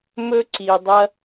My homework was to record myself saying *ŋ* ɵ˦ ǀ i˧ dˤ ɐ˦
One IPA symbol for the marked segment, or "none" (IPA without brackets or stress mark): m